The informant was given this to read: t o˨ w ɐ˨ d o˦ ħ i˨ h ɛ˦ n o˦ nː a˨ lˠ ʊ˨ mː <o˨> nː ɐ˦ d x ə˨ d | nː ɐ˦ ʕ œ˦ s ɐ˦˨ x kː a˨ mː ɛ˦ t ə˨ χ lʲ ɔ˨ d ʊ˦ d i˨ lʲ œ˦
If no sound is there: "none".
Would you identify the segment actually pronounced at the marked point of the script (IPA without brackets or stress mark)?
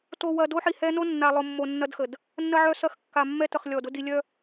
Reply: o˨